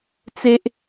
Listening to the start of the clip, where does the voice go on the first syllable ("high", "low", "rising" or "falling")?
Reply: high